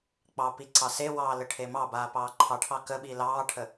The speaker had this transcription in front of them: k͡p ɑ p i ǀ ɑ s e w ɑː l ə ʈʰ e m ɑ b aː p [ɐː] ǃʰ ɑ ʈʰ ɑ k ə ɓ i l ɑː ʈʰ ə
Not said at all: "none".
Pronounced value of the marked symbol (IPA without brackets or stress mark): ɑː